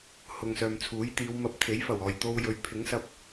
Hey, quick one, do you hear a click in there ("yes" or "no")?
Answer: no